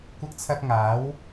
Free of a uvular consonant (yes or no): yes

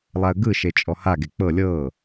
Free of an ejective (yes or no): no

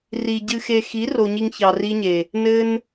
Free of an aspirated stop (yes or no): yes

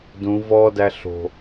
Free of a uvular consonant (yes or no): yes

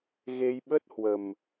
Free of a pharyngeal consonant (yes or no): yes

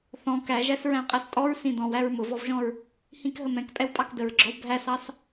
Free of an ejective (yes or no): no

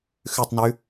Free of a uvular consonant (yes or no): yes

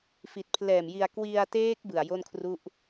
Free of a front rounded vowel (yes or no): yes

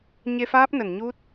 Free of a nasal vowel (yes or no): yes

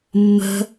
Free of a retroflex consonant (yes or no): yes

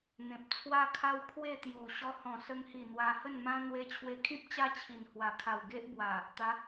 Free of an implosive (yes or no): yes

